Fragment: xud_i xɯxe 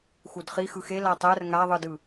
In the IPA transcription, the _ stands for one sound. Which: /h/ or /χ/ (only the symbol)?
χ